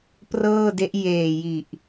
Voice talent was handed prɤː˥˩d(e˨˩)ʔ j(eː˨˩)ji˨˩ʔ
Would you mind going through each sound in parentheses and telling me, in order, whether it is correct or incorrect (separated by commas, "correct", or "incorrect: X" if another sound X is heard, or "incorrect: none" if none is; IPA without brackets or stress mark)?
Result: incorrect: e˦˥, correct